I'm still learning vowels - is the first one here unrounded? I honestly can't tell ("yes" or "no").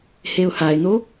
yes